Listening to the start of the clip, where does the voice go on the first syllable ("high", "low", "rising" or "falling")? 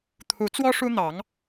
rising